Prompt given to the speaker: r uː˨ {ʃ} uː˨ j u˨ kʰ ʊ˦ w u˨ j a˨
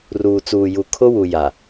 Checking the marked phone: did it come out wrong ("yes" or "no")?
yes